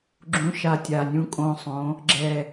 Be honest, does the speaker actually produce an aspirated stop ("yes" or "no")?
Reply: no